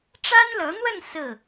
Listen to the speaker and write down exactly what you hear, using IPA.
ʈ͡ʂ a˥ n l ɤ˧˥ n̪ w ə˥˧ n s ɹ̩˥˩

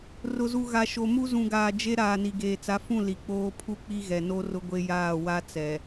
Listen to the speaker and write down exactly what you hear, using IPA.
r ʊ˨ z u˨ ɣ a˨ ʃ o˨ m u˦ z ũ˨ ɡ aː˨ d͡ʒ e˦ ɾ aː˨ n i˨ ɡ eː˨ t͡s a˨˦ f ũ˦˨ l i˨ k͡p oː˦ pʰ u˦ k͡p i˦ ɣ ɛ˨ n o˦ r ʊ˦ ɡʷ e˦ j aː˦˨ w a˦ t͡s ɛ˨

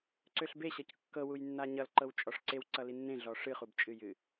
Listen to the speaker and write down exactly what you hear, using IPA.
ǀ ø ɬ b e ɕ ɤ c kː ɤ w u j nː a ɲ ʌ l ǃ ɤ w t͡ʃʼ ɔ ʂ ǀ e w ǀ ʌ l i nː ẽ ɮ ɔ ʂ ɨ χ u b t͡ʃʼ ɨ j ɨ

